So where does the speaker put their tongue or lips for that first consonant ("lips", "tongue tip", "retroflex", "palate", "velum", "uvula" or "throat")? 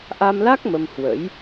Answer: throat